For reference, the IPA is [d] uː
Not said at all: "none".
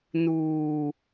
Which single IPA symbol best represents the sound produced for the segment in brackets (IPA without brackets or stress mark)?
n